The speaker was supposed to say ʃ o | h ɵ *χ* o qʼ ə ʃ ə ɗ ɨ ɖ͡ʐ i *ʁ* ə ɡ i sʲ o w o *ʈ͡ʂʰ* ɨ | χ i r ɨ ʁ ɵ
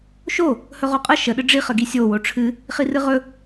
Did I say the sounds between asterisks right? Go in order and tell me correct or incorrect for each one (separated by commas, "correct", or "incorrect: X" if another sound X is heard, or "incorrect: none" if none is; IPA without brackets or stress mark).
incorrect: ʁ, incorrect: χ, correct